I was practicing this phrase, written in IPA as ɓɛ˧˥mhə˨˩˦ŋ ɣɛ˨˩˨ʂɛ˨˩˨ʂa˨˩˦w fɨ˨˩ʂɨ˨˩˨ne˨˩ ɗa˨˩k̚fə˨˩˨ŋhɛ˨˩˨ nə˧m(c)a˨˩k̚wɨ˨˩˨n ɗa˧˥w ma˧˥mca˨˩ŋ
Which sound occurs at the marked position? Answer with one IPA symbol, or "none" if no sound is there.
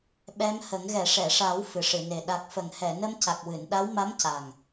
c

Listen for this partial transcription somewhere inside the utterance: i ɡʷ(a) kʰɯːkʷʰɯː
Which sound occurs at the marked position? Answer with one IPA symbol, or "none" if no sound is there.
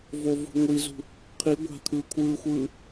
a̤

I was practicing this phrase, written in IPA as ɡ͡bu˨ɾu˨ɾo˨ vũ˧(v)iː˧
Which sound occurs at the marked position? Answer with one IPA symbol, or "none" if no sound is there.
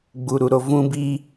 b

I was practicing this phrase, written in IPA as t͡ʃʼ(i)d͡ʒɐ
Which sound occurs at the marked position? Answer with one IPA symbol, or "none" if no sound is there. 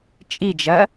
i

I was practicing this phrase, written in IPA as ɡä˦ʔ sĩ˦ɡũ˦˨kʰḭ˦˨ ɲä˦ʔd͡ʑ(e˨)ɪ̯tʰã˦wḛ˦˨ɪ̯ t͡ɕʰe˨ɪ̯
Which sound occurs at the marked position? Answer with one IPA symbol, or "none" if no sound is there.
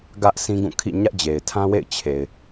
e˨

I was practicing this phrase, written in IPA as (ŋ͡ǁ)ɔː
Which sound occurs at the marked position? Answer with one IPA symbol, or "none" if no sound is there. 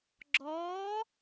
ɡ͡ǁ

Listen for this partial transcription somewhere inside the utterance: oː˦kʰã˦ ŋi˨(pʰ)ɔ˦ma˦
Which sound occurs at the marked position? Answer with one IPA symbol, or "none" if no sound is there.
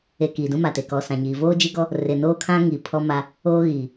pʰ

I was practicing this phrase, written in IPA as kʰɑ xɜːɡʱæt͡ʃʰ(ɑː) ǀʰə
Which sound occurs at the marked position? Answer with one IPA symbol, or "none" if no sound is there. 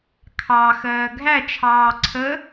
ɑː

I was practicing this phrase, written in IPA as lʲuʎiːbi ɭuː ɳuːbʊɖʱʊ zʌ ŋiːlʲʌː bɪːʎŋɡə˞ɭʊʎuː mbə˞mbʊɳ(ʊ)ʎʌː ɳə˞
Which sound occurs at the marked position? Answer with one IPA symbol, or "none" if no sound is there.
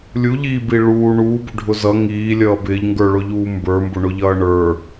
ʊ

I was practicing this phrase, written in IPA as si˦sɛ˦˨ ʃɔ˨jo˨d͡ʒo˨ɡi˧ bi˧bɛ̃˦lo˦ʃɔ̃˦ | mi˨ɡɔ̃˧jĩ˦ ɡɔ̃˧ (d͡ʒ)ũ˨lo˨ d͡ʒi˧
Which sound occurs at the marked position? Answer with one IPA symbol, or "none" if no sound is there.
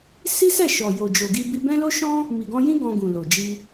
ɡ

